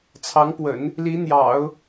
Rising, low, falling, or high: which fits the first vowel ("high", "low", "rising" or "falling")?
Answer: rising